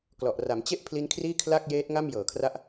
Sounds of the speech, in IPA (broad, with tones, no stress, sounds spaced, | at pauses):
k l ɔ˨˩ ʔ r a˩˦ m t͡ɕ e˥˩ ʔ pʰ l i˦˥ n kʰ r iː˥˩ kʰ l a˥˩ k̚ j eː˦˥ t̚ ŋ a˥˩ m j ɤː˨˩ kʰ r a˦˥ ʔ